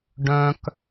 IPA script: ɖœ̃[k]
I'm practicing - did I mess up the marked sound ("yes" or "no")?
no